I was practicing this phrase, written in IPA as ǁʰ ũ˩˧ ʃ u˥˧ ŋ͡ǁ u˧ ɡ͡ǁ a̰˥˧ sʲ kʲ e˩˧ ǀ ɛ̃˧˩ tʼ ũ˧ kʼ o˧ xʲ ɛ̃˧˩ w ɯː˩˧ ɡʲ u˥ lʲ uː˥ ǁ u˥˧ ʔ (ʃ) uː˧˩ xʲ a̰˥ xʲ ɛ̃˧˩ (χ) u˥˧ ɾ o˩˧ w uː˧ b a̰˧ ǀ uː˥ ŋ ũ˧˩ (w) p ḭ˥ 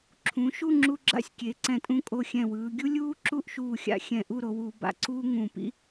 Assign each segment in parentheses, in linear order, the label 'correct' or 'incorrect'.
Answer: correct, incorrect, incorrect

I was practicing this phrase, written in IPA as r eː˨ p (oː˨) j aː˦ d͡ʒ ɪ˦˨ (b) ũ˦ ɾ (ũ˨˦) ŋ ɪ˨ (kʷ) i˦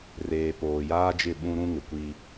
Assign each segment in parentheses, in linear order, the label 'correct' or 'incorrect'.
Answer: correct, incorrect, incorrect, correct

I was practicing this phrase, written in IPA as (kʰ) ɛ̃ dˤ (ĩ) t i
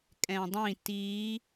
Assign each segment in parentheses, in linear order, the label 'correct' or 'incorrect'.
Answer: incorrect, correct

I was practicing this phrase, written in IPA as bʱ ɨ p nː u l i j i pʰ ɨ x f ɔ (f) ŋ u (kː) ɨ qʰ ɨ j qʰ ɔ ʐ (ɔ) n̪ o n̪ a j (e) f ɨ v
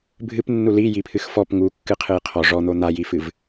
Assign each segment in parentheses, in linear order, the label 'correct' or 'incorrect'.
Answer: incorrect, correct, correct, incorrect

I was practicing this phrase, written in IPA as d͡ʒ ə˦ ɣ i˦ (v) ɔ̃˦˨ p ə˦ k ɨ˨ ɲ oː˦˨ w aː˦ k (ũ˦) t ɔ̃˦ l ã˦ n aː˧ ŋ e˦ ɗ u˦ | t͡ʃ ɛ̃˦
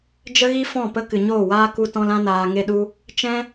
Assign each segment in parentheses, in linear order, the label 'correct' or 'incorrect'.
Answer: incorrect, incorrect

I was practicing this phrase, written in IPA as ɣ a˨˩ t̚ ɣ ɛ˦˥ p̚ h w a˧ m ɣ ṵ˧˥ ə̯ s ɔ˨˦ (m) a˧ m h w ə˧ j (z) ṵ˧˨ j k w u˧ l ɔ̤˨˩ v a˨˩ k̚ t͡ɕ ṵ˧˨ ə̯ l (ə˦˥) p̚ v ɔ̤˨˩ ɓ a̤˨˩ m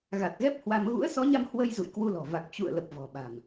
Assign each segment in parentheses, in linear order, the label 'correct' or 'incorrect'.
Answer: incorrect, correct, incorrect

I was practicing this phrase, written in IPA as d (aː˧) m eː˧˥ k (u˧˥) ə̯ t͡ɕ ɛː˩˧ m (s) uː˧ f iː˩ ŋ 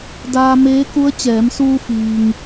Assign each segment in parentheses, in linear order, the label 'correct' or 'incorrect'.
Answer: correct, correct, correct

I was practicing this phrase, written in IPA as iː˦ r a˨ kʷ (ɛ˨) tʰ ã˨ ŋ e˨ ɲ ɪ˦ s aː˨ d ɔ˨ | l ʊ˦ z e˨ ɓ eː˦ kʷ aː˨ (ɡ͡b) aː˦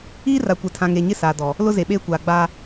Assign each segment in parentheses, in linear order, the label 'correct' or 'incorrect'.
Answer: correct, correct

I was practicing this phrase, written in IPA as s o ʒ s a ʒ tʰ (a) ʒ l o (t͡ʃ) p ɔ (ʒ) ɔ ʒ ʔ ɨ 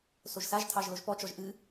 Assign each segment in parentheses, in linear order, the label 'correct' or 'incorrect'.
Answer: incorrect, incorrect, incorrect

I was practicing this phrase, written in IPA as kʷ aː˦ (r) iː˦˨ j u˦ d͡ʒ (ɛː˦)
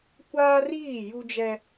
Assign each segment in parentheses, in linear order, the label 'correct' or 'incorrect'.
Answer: correct, incorrect

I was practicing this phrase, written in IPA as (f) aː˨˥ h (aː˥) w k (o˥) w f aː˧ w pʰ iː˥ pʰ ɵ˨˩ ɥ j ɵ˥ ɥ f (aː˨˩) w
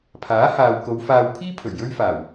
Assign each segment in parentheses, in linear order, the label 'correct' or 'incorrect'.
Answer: incorrect, incorrect, incorrect, correct

